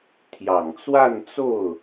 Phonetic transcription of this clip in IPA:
t̪ʰ j ɑ˨˩ ŋ t͡s w a˥˧ n t͡s o˥˩ ʊ̯

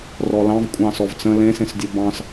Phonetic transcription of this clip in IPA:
r ɔ l ɑ̃ v kʷʼ ɑ̃ s ɔ v t͡s ə̃ l ẽ s ẽ s dʲ o b ɑ̃ s

